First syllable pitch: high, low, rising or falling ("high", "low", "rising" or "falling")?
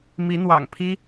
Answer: rising